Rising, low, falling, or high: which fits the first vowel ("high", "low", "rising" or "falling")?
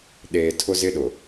low